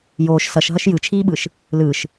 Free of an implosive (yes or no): no